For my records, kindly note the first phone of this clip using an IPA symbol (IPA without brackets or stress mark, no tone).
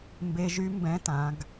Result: m